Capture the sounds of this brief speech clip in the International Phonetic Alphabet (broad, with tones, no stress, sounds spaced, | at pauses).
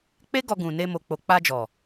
k͡p e˦ ɡ ɔ˧ ɡ ũ˨ n e˧ m o˨ k͡p o˨ k͡p a˧ d͡ʒ ɔ˨